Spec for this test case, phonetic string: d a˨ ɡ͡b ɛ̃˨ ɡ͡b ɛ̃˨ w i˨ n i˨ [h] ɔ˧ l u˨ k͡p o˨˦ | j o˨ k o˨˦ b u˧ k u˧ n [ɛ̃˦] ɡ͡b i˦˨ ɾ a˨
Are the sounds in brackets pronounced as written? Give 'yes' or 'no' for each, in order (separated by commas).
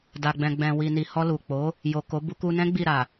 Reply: yes, yes